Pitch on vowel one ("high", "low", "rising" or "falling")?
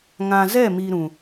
low